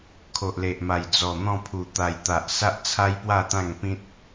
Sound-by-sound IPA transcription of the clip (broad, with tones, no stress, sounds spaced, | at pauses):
kʰ o˨ ʔ l e˨ ʔ m a˨˩ j d͡z ɔ˨˩ n̪ ɔ̃˥˧ pʰ u˨˩ t̪ a˨˩ j t̪ a˨ ʔ s a˦ ʔ t͡sʰ a˦ j p w a˥˧ t̪ ã˥˧ ŋ p ĩ˦ t̚